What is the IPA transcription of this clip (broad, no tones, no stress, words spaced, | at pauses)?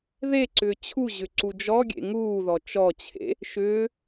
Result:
ðeǀʏː t͡ɕʰu ʑʏǀud͡ʒɔɡʲḛ ŋuːðɔ t͡ʃɔt͡ɕʰḛ | ʃʏː